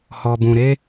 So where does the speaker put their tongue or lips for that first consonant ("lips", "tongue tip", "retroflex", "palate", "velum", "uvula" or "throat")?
throat